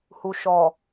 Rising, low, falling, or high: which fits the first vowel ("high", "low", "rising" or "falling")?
low